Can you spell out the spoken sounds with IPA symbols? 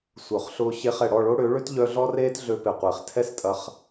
sʷ œ˨ χ ɬ ʊː˧ ɕ e˧ χ ɛ˨ ɽ ɔ˦˨ ɭ o˦ ɽ ø˨˦ ɭ ʏ˦ t ʎ œ˧ ɮ ɔ˦ r eː˦ t ɮ ø˧ p e˨ qʷ eː˨ χ tʰ ɛ˦ s tʼ ɐ˧ χ

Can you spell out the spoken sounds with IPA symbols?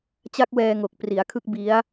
t͡ɕ a˦˥ k̚ w ɛː˧ ŋ o˨˩ k̚ p r i˩˦ a̯ kʰ ɯ˦˥ k̚ b i˦˥ a̯

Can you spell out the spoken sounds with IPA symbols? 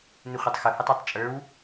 n ɪ χʷ ə tˤ x ʊ h ʊ tˤ ə˞ tˤ t͡ʃʼ ə˞ w

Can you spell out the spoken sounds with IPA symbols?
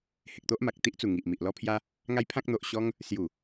h e˨ k̚ t̪ o˦ ʔ m a˨ k̚ t̪ i˦ ʔ t͡s u˨˩ ŋ i˨ ʔ m i˨ ʔ l ɔ˦ pʰ j a˦ | ŋ a˦ j pʰ ã˦ k̚ n̪ o˨ ʔ ɕ ɔ˦ ŋ | s j u˨˩

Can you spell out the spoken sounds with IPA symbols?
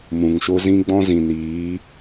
m ũ˨ ŋ ʃ o˦ z ĩ˦ ɡ͡b ɔ̃˦ z ĩ˨ n iː˨˦

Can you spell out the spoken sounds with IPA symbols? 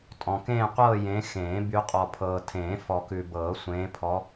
tʼ ɔ̃˨ k ẽː˥˧ qʷ ɤː˥˧ j ẽ˨˦ x ẽː˨˩˦ b y˨˦ qʼ ɔ˨ pʰ ɤː˨ tʰ ẽː˨˩˦ f ɔ˨ k ʉ˨ b ɤː˨˩˦ sʷ ẽː˨˦ pʰ ɔ˨˦

